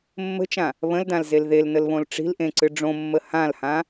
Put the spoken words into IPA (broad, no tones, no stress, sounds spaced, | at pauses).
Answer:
mː ə̤ t͡ʃ ã | β ə̃ l d ã l z e l ð e l n ə l β õ l ʈ͡ʂ i̤ l ʔ ẽ ǀ ɨ ɖ͡ʐ õ mː ə h ã l h ã